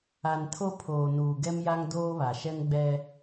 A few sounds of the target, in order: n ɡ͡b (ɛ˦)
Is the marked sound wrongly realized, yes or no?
no